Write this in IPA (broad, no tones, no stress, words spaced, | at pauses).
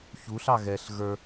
çuɬɑ ɣɛɬ ɣə˞